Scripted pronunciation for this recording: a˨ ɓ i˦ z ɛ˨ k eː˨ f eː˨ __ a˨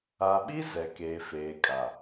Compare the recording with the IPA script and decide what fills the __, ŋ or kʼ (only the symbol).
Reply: kʼ